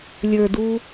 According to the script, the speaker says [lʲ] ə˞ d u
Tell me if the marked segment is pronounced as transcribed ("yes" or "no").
yes